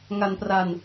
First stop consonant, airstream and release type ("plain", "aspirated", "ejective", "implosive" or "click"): plain